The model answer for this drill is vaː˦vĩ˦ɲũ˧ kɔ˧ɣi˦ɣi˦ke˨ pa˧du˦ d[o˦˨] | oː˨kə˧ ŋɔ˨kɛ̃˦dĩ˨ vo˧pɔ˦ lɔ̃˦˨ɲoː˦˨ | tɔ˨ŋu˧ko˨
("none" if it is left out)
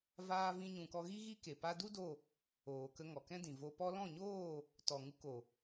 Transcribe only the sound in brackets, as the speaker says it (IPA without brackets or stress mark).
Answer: o˦˨